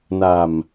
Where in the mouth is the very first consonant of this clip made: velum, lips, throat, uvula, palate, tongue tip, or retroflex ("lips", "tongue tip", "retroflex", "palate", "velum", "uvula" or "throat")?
tongue tip